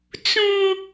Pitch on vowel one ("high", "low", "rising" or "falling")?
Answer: high